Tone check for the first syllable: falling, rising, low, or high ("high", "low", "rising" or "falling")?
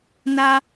high